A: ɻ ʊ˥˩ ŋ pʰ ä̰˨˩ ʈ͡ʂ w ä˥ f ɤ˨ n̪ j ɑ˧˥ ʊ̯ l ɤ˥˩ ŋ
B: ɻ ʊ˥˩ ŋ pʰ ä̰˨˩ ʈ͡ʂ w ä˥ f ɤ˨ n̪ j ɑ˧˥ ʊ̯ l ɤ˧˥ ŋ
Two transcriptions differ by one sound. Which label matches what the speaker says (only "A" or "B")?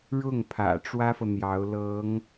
B